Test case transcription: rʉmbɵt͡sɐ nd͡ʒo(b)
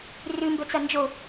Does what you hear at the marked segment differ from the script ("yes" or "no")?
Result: yes